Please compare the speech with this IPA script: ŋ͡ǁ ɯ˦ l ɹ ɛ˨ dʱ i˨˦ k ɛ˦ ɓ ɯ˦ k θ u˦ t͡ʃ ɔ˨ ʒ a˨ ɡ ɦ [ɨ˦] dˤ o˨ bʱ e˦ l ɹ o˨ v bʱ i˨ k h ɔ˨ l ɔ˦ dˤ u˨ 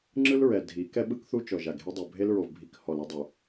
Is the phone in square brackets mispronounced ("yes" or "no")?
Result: yes